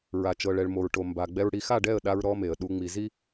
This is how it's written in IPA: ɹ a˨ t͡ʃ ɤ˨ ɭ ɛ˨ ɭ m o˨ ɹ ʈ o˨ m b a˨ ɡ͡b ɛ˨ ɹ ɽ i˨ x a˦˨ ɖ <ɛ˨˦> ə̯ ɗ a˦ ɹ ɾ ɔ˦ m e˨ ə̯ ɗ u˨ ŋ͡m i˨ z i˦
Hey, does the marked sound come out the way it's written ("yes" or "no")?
no